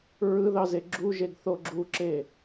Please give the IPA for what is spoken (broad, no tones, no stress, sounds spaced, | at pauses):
ɹ ɯ ð ɑ z e ɡ͡ǁ u ʒ e ɡ θ o ɡ͡ǁ u ǁ e